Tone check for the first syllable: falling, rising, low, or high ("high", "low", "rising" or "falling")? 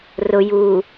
low